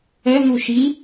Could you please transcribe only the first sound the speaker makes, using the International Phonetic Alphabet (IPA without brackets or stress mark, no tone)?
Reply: ɛ